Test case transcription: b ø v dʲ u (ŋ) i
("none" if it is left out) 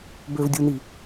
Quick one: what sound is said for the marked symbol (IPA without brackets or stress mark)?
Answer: n